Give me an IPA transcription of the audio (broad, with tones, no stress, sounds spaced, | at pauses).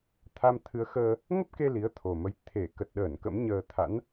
t̪ʰ a˧ m t̪ʰ ɨ˨˦ ə̯ x əː˧ | ŋ ə˦˥ p̚ k e˧ l i˨˦ ə̯ t̪ʰ o˨˩ m ə˨˦ j t̪ʰ e˧˩ k ə˨˩ t̚ ɗ əː˧˩ n k ə̰˧˥ m ɲ əː˧ t̪ʰ a̰˧˥ n